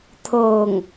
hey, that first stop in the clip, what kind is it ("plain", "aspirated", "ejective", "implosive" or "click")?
aspirated